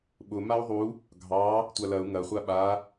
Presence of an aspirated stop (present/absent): absent